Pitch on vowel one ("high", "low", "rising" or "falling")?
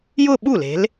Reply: falling